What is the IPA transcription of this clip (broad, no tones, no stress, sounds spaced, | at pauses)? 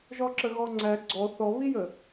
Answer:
ʒ ɔ ǁ ə ɣ ɔ ŋ͡ǀ æ ɡ͡ǀ ɔ θ ɔ β i j ə